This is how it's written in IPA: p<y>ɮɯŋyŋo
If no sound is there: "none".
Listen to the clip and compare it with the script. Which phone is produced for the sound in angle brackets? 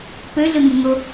ø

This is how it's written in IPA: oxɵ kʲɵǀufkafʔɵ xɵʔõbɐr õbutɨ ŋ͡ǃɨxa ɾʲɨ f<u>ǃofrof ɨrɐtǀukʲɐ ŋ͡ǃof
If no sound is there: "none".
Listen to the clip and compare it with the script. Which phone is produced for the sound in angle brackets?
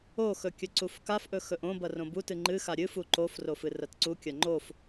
u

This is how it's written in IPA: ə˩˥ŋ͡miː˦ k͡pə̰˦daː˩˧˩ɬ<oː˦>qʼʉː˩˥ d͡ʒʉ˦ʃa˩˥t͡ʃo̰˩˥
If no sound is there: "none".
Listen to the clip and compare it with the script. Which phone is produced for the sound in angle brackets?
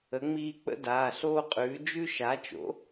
oː˦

